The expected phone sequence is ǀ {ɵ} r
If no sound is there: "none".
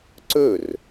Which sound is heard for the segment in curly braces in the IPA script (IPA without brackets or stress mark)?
ɵ